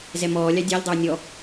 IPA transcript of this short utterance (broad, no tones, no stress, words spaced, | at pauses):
zɛmɔːlʲɑ dʲælʲdˤœw nʲɔ